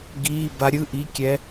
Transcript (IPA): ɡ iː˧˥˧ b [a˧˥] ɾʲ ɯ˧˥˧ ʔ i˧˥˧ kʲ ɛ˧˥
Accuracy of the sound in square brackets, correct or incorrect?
correct